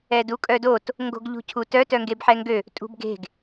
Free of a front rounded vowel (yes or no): no